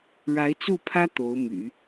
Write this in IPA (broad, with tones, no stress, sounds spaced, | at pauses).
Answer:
ɻ a˧˥ ɪ̯ t͡s u˥˩ pʰ ä˥ t̪ o˧˥ ʊ̯ m y̰˨˩˦